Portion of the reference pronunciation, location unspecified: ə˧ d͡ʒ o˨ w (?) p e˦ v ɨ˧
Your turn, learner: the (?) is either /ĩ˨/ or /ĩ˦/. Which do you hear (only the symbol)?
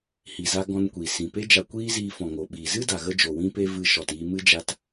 ĩ˦